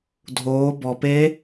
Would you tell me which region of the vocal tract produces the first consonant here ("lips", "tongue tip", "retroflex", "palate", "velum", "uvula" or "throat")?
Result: tongue tip